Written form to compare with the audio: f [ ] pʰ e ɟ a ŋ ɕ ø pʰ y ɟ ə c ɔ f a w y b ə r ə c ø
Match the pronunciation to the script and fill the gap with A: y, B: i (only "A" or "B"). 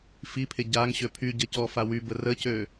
B